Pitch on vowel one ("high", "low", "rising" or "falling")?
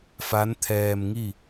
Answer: rising